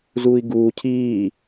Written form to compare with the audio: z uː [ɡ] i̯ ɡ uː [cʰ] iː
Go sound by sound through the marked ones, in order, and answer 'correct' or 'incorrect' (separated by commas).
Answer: incorrect, correct